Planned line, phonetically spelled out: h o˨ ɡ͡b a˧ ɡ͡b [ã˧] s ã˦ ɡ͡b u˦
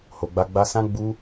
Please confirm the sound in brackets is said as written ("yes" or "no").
no